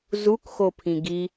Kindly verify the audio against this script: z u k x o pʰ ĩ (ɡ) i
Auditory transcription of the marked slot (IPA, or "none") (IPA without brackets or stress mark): ɡ